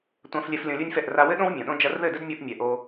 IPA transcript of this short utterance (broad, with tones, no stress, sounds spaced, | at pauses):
tʷ ã˧ f lʲ ɛ˧ f lʲ õ˧ lʲ u˦ nʲ f ɛ˦˨ ʔ r a˧ w ɘ˦ ɗ õ˦ w mʲ õ˨ ɗ õ˦ d͡ʒ ɐ˧ r ð ɘ˦˨ d ɘ˦ d mʲ o˦ ʔ mʲ ɛ˧ ʔ o˦